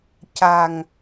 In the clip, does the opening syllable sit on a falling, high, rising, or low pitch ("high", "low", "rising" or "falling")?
low